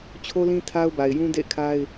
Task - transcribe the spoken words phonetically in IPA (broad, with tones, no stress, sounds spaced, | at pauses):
t͡ɕʰ o˦ l ĩ˦ tʰ a˦ ʊ̯ b a˨ ɪ̯ j ũ˦ d ḛ˦˨ ɪ̯ kʰ a˦ ɪ̯